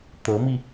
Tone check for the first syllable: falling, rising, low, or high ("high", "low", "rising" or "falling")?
rising